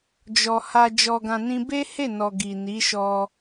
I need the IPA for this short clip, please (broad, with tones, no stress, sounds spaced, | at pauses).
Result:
d͡ʒ ɔ˨ h a˧ d͡ʒ ɔ˧ ɡ ã˧ n ĩ˦ b e˦ h e˦˨ n ɔ˨ ɡ i˨ n i˨˦ ʃ ɔ˧